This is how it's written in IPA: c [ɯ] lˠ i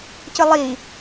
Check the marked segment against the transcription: correct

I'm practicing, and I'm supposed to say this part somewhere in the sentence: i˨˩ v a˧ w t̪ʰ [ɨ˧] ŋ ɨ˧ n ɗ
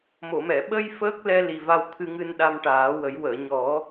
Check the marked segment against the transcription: correct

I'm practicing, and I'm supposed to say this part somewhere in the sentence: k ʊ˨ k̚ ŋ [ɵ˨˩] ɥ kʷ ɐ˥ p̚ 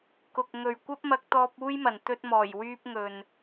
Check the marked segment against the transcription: incorrect: ɵ˨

